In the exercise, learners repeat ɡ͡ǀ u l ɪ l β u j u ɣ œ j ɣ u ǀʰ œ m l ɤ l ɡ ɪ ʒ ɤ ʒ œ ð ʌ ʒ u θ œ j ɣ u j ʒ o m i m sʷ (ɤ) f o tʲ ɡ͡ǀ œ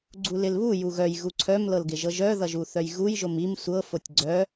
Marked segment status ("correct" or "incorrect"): correct